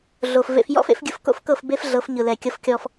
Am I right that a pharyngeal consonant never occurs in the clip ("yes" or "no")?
yes